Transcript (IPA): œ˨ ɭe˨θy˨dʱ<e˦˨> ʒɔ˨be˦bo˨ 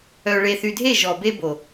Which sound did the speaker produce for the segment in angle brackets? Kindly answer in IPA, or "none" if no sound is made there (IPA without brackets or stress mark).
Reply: e˦˨